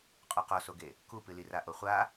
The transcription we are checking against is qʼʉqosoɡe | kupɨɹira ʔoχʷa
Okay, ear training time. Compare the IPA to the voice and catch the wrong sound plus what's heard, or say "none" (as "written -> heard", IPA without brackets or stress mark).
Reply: ɹ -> l